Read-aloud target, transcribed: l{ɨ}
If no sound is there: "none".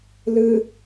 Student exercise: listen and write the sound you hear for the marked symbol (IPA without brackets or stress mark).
ɨ